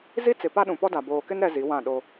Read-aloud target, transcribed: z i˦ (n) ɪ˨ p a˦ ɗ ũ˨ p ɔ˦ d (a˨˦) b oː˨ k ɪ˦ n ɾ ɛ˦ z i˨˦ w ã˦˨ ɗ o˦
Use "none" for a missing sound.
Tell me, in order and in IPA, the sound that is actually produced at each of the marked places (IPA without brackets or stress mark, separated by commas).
t͡s, a˨